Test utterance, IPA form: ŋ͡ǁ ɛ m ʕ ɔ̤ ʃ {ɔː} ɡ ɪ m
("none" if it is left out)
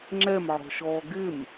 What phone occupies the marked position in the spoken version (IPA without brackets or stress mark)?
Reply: ɔː